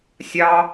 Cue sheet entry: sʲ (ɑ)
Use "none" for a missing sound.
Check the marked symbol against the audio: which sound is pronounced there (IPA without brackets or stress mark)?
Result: ɑ